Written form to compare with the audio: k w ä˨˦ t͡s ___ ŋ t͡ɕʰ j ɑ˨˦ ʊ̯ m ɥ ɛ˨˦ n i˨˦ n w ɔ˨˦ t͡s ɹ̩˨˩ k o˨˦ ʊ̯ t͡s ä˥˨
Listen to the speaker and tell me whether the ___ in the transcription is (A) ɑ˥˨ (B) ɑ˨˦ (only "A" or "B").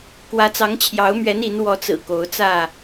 B